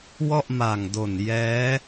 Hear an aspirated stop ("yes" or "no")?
no